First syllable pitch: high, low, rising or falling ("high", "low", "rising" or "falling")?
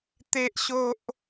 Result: high